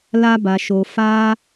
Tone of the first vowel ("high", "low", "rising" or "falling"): high